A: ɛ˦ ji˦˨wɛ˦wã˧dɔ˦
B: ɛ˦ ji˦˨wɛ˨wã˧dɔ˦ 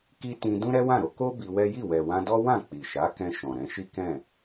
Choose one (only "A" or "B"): B